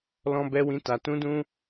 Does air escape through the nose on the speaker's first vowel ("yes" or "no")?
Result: yes